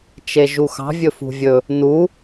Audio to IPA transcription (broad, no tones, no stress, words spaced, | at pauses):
t͡ʃeʒuxɑ̤ vʲɵfṳvʲɵ | nu